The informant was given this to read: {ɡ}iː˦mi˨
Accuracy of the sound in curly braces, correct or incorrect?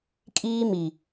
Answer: incorrect